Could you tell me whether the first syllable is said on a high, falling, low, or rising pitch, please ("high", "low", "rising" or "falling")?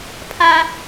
high